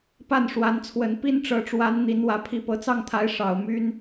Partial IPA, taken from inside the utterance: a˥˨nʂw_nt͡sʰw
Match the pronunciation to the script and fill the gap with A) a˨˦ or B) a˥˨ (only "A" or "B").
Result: A